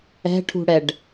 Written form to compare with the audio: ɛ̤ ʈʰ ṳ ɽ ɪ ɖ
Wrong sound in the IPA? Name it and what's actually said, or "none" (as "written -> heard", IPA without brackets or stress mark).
ɪ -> ɛ